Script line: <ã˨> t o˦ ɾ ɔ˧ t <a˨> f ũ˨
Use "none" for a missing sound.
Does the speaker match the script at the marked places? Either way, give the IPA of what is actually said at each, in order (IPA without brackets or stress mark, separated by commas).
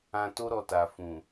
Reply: ã˧, a˨